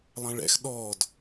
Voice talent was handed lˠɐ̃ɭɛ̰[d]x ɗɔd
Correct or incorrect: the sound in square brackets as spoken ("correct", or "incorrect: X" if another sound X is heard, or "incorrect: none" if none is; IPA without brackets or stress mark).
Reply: incorrect: none